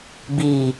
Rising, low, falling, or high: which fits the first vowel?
low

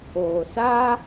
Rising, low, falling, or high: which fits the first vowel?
low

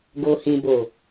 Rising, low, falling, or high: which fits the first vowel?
low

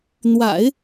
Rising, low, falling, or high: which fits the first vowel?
low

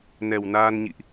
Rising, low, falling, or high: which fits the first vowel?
low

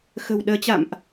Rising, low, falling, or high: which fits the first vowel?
low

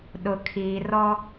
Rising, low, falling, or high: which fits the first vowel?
low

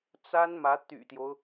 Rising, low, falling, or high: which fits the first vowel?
high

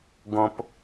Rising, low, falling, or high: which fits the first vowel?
low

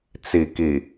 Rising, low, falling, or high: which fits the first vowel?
low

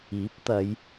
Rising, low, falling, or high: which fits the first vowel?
rising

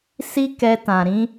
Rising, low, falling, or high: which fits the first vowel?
high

